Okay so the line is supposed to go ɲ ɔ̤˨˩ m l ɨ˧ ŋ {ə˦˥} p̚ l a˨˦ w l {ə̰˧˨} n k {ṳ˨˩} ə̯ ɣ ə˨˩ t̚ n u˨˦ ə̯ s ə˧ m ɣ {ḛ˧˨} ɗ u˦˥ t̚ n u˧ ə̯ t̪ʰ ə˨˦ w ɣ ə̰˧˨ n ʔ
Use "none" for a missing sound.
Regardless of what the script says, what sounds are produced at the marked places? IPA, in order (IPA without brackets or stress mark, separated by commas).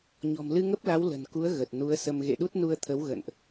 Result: ə˦˥, ə̤˨˩, u˨˦, ḛ˧˨